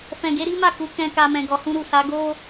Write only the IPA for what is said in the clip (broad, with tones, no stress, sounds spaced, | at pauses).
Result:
f ɛ̃˨ ɡ e˨˦ ɾ i˦ m a˦˨ k u˨˦ k ɛ̃˧ k a˧ m ɛ̃˨ ɡ ɔ˨ h ũ˧ ɾ u˨ s a˨˦ ɡ o˦